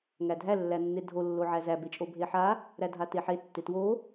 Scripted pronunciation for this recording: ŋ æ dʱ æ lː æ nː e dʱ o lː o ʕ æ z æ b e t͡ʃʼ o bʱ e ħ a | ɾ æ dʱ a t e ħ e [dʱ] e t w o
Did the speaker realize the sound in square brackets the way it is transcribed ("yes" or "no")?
no